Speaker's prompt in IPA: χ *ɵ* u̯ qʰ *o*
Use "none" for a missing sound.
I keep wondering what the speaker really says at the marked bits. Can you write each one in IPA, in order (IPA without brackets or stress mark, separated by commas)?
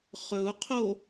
ɵ, o